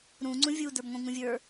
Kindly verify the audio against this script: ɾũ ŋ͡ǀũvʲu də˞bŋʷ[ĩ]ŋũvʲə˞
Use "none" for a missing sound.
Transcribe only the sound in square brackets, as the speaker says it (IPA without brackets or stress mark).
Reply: ĩ